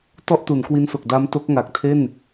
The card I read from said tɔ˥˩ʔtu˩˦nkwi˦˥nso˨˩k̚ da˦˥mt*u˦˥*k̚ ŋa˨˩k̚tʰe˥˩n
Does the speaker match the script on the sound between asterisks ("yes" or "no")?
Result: no